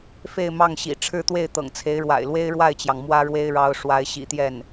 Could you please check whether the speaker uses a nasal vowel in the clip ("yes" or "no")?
no